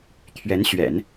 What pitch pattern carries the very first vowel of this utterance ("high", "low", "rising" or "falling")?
rising